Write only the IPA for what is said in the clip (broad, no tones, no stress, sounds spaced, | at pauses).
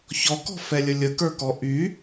ç ɔ k ɔ̤ f ɛ lʲ ə lʲ ə k ə˞ k ɔ ʔ y